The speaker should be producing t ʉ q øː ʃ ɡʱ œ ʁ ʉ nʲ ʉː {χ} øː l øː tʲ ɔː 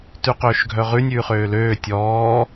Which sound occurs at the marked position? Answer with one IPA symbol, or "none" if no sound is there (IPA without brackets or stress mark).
χ